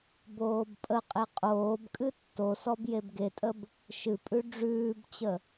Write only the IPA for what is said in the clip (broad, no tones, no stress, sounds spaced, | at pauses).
b oː b pʼ ə qʼ e qʼ oː b kʼ ɨ tː o s ɔ b j e b ɡ e tʼ ə b | ʃ ɨ pʼ ʉ ɖ͡ʐ ʉː b t͡ɕ ə